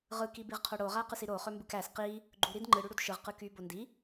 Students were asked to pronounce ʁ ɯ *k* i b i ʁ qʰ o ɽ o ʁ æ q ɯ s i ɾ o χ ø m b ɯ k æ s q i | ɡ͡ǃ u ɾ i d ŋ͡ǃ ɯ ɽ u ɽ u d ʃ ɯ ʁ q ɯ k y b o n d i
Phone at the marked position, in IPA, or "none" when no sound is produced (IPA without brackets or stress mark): k